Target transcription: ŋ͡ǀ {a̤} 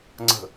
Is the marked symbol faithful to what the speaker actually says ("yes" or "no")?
no